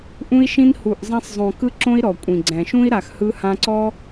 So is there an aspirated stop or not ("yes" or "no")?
no